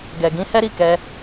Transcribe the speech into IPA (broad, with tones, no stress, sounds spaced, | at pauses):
ɡ ɛ˨ ɡ ĩ˨˦ h ɛ˦ ɾ i˦˨ k ɛ˧